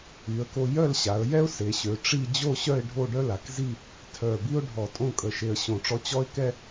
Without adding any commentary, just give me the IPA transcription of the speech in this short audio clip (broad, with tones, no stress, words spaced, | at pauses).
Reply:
y˩˧ə̯ko˧ jœ˥˧lɕa˩˧ə̯jɛ˥ʊ̯ se˩˧ɕø˩˧ ʈ͡ʂi˥˧ d͡ʑo˥˧ɕœ˥˧ɪ̯ ɖʱo˥˧ɖœ˥la˩˧kzi˥˧ | tʰœ˧˩bi˥ʊ̯ ɖʱɔ˧˩tʼõ˥˧kʼə˧˩ ʃe˧ə̯ɕõ˧˩ʈ͡ʂɔ˥ t͡ɕɔ˥ɪ̯kɛ˥